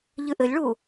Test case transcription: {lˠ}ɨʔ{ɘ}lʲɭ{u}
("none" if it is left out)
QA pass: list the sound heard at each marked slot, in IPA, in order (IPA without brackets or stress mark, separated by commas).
ʎ, ɘ, u